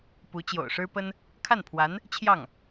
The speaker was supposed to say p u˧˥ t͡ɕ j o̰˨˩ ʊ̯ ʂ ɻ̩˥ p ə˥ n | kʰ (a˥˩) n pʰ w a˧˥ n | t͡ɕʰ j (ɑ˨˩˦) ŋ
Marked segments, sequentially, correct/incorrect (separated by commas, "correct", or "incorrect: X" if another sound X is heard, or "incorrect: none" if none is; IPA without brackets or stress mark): correct, incorrect: ɑ˥˩